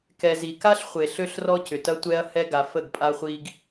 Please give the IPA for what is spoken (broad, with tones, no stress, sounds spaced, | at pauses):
k ɛ˨ z i˨ k a˦ ɬ χʷ e˨ ɬ ø˦ ɬ r ɔ˦ c ʏ˨ t ɐ˦ tʷ ɛ˦ ɐ̯ h ɛ˦ ɡ a˨ f ə˦˨ ɡ pʼ a˦ χʷ i˦ ɡ